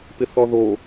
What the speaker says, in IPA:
p ɪ θ ɔ ð o

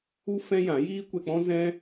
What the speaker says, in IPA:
u˦ f ɛ̃˦ j ã˨˦ j iː˦ kʷ ɛ˧ k͡p ɔ̃˦ z ɛ̃˦

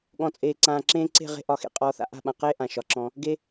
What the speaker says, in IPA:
ɠ ɔ̃˨ t͡sʼ eː˨ ǀ ãː˨ ǁ ẽː˧ ǀ e̤˦˨ ʁ e̤˦ ʔ ɒ˨˦ x ḛ˧ qʼ ɔː˧ θ a̰˧ ʔ a̤˦˨ ɓ ã˨ q eː˦ ʔ ã˨ ʃ ɒ˨ ǁ ɔ̃˧ | ɡ e˧

